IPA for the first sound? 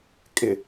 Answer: kʼ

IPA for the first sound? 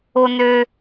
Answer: o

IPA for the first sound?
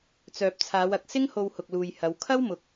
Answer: t͡s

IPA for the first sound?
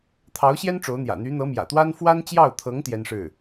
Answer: t̪ʰ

